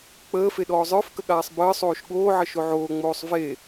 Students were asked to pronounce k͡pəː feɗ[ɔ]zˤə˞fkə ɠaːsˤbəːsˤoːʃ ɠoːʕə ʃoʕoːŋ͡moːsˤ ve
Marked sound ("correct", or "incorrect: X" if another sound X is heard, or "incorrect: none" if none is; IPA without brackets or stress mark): incorrect: ɔː